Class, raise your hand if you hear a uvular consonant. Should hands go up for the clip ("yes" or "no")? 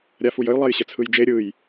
no